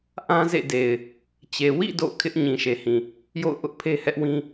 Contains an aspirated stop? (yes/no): yes